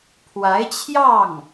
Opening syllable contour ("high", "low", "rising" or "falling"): rising